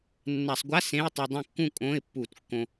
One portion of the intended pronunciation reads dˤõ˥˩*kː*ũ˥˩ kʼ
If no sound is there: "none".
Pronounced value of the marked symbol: kː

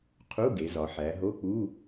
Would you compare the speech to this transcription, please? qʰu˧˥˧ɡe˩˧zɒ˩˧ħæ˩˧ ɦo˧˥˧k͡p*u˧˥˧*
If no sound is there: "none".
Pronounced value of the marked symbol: u˧˥˧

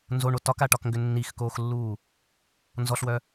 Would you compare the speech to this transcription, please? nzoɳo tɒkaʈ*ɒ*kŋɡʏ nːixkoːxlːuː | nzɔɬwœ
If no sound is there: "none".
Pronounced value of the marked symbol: ɒ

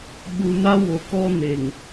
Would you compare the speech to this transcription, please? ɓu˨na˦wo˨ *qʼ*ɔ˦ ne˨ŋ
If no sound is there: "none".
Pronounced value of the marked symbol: k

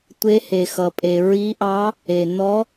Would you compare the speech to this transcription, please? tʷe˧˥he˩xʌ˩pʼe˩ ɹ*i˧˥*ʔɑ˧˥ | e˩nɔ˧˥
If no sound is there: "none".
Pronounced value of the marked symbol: i˧˥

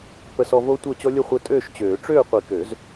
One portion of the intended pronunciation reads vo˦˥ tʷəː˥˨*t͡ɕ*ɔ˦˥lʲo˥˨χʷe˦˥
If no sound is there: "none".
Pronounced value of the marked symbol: t͡ɕ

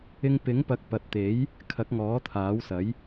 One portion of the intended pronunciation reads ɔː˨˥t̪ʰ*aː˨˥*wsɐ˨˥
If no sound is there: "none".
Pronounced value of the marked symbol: aː˨˥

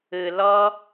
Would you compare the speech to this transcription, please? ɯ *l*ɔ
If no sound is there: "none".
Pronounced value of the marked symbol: l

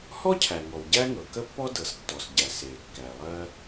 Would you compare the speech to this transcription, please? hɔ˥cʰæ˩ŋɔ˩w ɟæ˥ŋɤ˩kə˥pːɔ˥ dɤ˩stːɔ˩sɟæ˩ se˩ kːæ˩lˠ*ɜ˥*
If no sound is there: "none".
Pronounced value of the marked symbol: ɜ˥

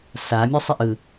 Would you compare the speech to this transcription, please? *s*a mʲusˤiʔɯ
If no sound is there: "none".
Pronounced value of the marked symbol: s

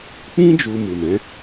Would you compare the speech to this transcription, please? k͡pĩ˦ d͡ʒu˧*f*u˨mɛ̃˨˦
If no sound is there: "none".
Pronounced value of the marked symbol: m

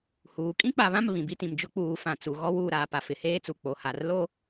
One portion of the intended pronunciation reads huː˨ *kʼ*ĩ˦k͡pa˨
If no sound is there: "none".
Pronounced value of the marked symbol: kʼ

